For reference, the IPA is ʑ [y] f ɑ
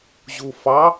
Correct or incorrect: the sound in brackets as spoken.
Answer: incorrect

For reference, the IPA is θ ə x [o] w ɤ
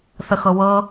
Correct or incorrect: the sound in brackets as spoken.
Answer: incorrect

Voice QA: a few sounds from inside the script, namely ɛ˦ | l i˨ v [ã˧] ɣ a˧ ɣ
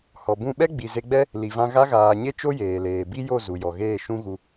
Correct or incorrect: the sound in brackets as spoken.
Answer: correct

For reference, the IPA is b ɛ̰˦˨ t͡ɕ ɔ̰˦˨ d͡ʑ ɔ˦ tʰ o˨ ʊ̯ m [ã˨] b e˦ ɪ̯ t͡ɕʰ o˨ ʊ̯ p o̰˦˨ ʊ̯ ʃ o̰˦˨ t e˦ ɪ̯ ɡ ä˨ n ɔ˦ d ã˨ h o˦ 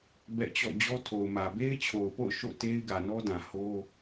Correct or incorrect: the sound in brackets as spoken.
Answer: incorrect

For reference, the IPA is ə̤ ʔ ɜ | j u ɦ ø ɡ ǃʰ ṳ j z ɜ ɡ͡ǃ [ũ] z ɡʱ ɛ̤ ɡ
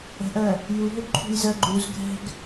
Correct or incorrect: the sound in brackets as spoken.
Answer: incorrect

